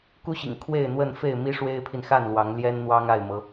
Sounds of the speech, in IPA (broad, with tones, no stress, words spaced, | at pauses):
ku˦ɕḭ˨˩ŋ kʰwe˥˨ɪ̯n̪wə˥˨nfe˥˨ɪ̯ mi˦ʂwe˦ɪ̯pʰi˨nxa˥˨n lwɑ˨˦ŋ ljɛ˦nn̪wɑ˦ŋ a˥˨ɪ̯mɤ˨˦